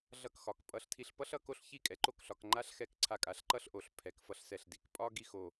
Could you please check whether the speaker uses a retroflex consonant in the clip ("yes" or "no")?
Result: no